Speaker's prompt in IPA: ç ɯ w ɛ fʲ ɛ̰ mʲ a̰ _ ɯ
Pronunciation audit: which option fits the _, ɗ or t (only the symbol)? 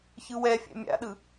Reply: ɗ